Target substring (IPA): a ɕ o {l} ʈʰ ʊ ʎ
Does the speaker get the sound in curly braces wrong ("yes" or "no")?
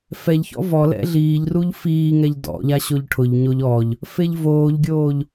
yes